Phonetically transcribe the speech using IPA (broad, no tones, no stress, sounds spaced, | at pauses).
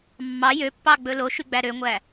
mː ɑ j ø pː ɑ ɡ͡b ɵ l o ʃ y ɡ͡b æ ɾ ø ŋʷ æ